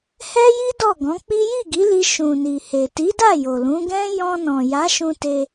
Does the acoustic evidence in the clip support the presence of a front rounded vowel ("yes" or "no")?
no